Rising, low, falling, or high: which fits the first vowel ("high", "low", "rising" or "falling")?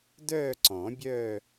falling